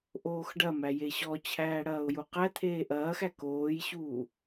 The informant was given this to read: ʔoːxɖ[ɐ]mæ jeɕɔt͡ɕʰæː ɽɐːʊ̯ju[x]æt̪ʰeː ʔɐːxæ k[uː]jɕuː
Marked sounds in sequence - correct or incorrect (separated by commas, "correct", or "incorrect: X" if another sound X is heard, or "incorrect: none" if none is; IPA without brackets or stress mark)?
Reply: correct, incorrect: q, incorrect: oː